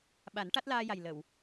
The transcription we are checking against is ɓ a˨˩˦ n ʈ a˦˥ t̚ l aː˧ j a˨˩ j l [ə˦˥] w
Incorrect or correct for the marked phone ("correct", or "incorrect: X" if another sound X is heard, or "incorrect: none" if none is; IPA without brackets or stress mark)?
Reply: incorrect: ə˨˩˨